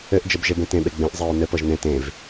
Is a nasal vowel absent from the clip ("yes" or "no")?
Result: no